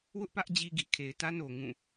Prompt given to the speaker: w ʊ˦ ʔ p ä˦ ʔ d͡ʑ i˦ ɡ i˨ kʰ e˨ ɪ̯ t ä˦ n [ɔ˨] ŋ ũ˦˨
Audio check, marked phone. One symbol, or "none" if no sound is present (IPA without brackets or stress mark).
o˨